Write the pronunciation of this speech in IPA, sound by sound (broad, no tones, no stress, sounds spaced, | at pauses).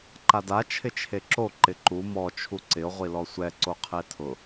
ǃ a d a t͡ʃʰ ɪ t͡ʃʰ e ǁ o ǃ ɪ ǃ u m ɔ t͡ʃʰ u ǀ ɪ o̯ ʁʷ i l ɔ sʷ ɛ ǀ o qʰ e tʰ ʊ